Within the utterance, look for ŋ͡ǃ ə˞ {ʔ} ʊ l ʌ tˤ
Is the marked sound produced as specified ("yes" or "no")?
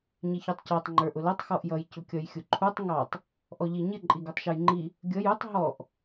yes